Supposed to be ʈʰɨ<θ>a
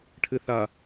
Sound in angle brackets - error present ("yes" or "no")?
no